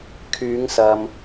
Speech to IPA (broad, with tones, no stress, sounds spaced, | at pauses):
kʰ yː˨˧ ŋ s ɐ˨ m